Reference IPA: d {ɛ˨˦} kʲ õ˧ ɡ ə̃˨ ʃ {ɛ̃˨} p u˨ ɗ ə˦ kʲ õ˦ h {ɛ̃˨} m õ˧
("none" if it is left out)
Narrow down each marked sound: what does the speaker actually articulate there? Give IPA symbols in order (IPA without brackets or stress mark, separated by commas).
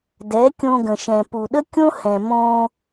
ɛ˨˦, ɛ̃˨, ɛ̃˨